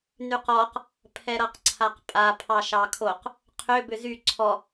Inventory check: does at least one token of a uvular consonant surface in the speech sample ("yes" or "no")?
yes